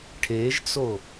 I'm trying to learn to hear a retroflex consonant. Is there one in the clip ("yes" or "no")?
yes